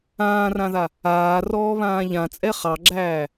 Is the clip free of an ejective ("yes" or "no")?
no